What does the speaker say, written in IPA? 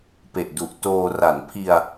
p e˨˩ ʔ d u˨˩ ʔ t oː˧ r a˩˦ n pʰ i˧ a̯

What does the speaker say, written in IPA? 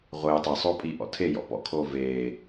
ʁʷ ɪː tˤ e sˤ oː pʼ i ʔ ɔ̰ tʰ e j ɔ̰ p ɔ̰ kʰ oː v eː

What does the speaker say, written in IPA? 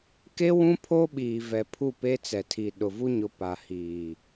k e˦ w ũ˦ pʰ oː˦ ɓ iː˨ v ɛ˨ pʰ u˦˨ p e˦ t͡s ɛ˨ tʰ i˨ ɗ ʊ˨ v u˦ ɲ ʊ˨ p a˨ h iː˨

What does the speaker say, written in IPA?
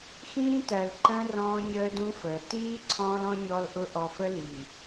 x ĩː˦ t æ˨ l ǃ ə̃ː˦ r ɔ̃ː˦ ɲ əː˦ d ũ˦ f əː˨ t iː˦ ǀʰ ɔ̃ː˦ l ɔ̃˦ ɲ ɔ˦ l ʔ ʊ˦ ʔ ɔ˨ f ə˦ l i˨

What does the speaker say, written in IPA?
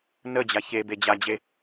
n ə d͡ʑ a ç e b e d͡ʑ a d͡ʑ e

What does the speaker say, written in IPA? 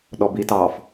ɗ ɔ b i t ɑ f

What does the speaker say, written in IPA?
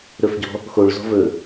ɾ ɵ f ɟ ɔ̤ | x o ɭ z ɔ̤ v ɵ

